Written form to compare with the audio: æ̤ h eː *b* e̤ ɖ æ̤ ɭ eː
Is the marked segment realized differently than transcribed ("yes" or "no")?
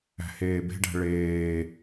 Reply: no